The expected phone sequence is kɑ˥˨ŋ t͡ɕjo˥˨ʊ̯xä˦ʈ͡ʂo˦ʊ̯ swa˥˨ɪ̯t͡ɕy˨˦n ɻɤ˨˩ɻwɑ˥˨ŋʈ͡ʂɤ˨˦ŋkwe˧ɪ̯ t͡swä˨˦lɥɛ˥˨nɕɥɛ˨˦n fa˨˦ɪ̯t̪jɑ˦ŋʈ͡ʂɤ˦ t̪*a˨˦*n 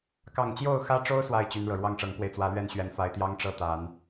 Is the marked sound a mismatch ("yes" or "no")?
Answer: no